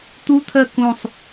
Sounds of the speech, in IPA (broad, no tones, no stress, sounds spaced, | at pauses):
t̪ u t̪ʰ ɜ k ũ sˤ